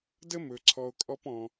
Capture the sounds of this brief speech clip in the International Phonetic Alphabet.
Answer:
d ə˥ m ɵ˩ ǀʰ ɔ˧ o̯ kʼ ɔ˥ p ɔ̃˩

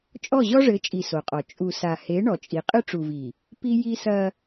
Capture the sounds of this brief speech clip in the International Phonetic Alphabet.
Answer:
t͡ʃʼ ɔ˦˨ ʑ ɔ˦ ʐ ɘ˨˦ t͡ʃʼ i˨ s o˨ qʼ ɔ˨ t͡ʃʼ u˨ s a˨ h e˨˦ ɳ ɔ˨ t͡ʃʼ i˨ qʼ ɨ˦ ʈ͡ʂ u˨ v i˨ | p i˦ j i˦ s ɐ˦

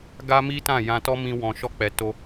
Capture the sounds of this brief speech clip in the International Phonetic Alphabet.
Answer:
ɡ a˦ m i˦ t ã˦˨ j ã˧ t ɔ˦ m ĩ˧ w ɔ̃˨ ʃ ɔ˧ k͡p ɛ˨ t o˧

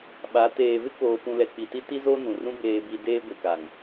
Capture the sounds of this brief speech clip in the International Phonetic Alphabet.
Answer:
ɓ a˨˦ t eː˨ v ɪ˦ k oː˨ p ũ˨ l ɛ˨ k͡p i˨ t i˦ t i˦ z o˦ n ũ˨ r ũ˦ b eː˨ b i˨ d eː˦ ɡʷ i˨ k a˨ ŋ

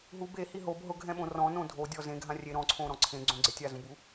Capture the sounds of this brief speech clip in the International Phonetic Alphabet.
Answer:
ɦ u b e h i ɦ o b ɦ ʊ ɡʱ ɛ̃ ɓ õ r ɔ̃ n õ dʱ o dʲ ɔ z ẽ ɡʱ ã rʲ e ɾ ɔ̃ ǀʰ õ ɾ ɔ̃ ǀʰ ẽ ɡ͡ǀ õ ɡ͡ǀ ɪ tʲ a z ũ b u

